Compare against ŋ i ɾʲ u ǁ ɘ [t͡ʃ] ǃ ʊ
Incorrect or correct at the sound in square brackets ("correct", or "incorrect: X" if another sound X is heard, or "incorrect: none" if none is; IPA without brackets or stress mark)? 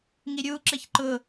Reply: incorrect: ç